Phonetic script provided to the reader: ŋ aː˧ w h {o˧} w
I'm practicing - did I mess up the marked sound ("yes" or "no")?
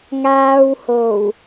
yes